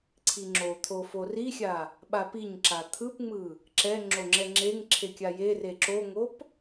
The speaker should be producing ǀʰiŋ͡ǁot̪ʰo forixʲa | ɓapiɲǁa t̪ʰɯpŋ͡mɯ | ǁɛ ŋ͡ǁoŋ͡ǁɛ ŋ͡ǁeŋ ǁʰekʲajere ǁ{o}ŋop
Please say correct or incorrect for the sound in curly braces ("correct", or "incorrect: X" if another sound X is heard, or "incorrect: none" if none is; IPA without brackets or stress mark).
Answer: correct